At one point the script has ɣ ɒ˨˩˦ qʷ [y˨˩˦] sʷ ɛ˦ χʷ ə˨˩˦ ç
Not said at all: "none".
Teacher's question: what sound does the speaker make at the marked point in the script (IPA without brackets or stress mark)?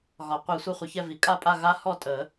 i˨˩˦